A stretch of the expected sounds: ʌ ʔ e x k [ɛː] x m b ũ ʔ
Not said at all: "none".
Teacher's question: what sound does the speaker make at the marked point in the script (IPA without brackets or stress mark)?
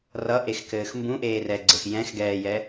ɘː